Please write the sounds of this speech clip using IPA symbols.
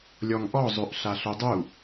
lʲ ɔ ŋ ʔ ɔ zˤ ø ʔ ɬ a ɬ ø dˤ u

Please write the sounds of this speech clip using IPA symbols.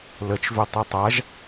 l ə t͡ʃ v ʏ tˤ e tˤ a ʒ

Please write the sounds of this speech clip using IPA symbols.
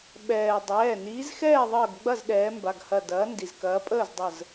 ɓ ɛː˩ dˤ ɛː˩˧˩ n iː˨˦ z x ɛː˥˨ ðˤ əː˧˩ ɡ ɡ͡b ɐ˥˨ z ɗ ɛː˨˦ m b a˩˧˩ ɡ h ɐ˧˩ d ɐː˨˦ n d i˩ z k ɐː˨˦ pʼ əː˥˨ z dˤ ə˧˩ z

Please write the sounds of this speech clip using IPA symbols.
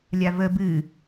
lʲ a v ə b ɨ

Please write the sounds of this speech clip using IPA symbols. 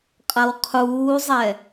qʼ ɐ w qʰ uː zˤ ɛ

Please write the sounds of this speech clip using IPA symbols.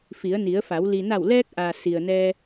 f i˩˧ ə̯ n i˩˧ ə̯ f a˩˧ w l i˩ n a˧˩ w l ɛː˧ k̚ ʔ a˩ s i˩ ə̯ n ɛː˧

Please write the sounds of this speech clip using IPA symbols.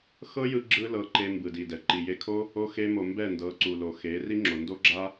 x ɤ˦ j ɯ˧ ɡ͡ǁ ɯ˦ l ɤ˧ ǃ e˧ m b ɯ˨ d i˨ d ɛ˨ ǃ i˨ j e˧ kʰ o˦ | o˧ x e˧ m o˨ m b ɛ˦˨ n d ɤ˨˦ ǀ u˨ l o˨ x e˨˦ r i˦ ŋ͡ǁ o˨ n d o˦ ɡ͡ǁ a˦

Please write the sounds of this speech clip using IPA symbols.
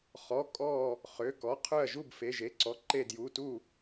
χ ɔ˩˧˩ kʼ ɔ˧˩ | χ ø˩˧˩ k ɔ˩˧˩ qʰ ø˧˩ ɐ̯ ʒ u˧˩ b f e˩˧˩ ʒ e˩˧˩ ǀ ɔ˩˧˩ ǃ e˧˩ d j u˩˧˩ t u˧˩

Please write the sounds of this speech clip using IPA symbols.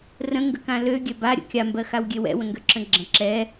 r ə̃ ŋ ɡ ə k ã l ø ɡʲ ɛ b a ɾʲ ə̰ kʲ a m b ɜ x a w ɡʲ e w ɛ̰ w ə̃ ŋ ɡ ø ǁ ə̃ ɡ͡ǁ ə̃ ǁ ɛ

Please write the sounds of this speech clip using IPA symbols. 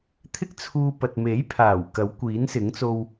t̪ʰ ɪ˥ k̚ t͡sʰ uː˧ p ɐ˨ t̚ m e˨˥ j pʰ aː˨˩ w k ɐ˨˥ w kʷ iː˨˥ n s ɪ˨˥ ŋ t͡s o˧ w

